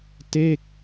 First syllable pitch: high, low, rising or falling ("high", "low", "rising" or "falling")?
falling